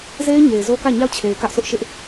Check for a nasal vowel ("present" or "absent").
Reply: absent